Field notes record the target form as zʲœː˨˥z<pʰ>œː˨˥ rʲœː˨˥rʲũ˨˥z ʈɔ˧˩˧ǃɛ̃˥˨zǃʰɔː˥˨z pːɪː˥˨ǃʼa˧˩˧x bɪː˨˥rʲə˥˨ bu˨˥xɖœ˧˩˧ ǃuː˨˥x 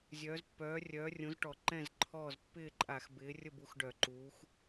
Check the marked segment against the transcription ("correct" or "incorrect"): incorrect